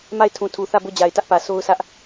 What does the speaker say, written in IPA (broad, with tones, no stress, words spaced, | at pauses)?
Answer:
ma˦˨ɪ̯tʰũ˨tʰu˨ θä˦˨ bo˦˨d͡ʑa˨ɪ̯tä˦ʔpä˨ so˦ʊ̯sʰä˦ʔ